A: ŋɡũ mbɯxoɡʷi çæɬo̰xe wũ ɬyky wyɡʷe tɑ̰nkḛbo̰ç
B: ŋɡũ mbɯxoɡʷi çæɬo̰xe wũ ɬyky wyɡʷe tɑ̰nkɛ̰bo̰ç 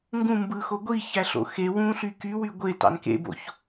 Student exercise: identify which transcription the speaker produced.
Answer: A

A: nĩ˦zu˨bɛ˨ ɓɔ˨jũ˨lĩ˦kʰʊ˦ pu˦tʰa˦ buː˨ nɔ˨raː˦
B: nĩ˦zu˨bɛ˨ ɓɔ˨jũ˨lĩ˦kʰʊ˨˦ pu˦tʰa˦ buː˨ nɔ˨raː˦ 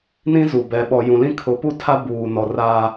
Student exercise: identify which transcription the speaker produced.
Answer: B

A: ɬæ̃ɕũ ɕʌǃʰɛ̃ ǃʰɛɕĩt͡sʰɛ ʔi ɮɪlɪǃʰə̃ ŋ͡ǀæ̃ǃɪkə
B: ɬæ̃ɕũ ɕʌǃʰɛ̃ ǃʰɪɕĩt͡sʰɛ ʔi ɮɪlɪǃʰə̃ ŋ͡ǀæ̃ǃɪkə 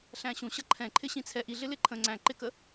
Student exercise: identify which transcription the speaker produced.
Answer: B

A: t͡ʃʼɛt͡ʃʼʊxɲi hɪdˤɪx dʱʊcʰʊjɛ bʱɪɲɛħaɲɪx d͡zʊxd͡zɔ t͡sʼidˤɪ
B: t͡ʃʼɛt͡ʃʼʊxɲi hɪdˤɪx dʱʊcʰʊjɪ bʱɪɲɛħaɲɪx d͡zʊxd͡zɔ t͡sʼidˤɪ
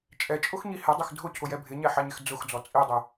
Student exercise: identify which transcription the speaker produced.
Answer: A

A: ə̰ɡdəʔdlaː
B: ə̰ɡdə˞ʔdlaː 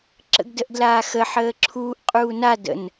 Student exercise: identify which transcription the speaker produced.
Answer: A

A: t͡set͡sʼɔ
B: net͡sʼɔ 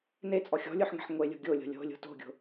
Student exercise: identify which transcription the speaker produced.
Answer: B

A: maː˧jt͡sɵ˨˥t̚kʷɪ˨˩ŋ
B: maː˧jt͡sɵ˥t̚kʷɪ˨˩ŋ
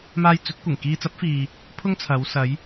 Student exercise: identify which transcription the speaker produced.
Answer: A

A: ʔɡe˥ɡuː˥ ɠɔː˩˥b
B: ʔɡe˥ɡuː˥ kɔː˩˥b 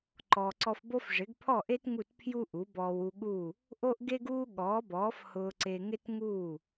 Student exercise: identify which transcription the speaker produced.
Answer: A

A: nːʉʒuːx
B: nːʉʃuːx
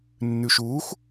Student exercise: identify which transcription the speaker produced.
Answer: B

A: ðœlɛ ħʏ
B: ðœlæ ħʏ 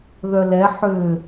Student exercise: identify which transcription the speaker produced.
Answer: A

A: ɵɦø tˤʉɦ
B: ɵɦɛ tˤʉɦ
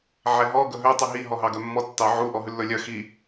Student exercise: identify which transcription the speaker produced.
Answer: A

